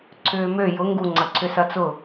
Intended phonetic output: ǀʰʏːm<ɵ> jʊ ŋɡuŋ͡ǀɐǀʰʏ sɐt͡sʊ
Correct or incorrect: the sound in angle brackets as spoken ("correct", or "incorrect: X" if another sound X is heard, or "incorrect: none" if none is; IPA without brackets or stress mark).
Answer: incorrect: ø